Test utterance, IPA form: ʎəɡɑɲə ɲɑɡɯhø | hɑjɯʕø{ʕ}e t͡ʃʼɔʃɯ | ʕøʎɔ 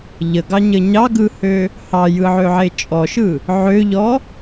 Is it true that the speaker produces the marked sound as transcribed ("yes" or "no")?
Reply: yes